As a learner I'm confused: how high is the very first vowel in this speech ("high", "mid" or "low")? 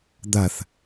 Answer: low